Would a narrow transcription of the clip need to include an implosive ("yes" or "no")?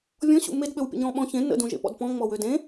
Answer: yes